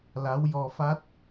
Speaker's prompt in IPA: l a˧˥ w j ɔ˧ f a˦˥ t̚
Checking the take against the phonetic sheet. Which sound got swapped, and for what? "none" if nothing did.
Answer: none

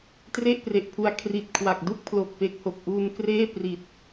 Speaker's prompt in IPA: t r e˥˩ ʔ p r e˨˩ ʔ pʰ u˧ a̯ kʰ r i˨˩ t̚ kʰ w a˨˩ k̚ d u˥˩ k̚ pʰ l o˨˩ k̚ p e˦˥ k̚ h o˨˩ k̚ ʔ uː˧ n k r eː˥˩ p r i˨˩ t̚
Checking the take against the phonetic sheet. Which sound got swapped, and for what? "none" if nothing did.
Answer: none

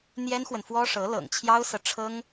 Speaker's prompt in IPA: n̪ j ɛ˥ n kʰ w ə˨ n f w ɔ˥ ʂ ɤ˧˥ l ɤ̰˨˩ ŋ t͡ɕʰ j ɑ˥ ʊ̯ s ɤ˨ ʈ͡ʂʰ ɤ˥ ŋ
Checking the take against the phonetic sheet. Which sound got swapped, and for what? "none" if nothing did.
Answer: kʰ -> x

